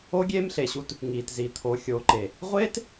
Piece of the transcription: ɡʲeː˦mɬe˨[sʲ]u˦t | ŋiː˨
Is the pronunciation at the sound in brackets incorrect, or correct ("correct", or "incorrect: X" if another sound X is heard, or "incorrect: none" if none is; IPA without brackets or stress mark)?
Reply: incorrect: ɕ